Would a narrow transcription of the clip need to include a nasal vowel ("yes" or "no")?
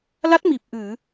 no